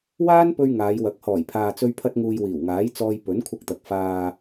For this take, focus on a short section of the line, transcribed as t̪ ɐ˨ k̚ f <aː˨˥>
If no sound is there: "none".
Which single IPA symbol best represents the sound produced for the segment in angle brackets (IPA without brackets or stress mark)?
aː˨